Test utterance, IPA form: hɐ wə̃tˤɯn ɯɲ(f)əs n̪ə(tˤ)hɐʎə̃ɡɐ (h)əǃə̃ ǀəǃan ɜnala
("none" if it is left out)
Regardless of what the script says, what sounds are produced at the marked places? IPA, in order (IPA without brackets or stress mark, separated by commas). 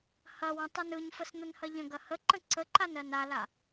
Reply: f, n, h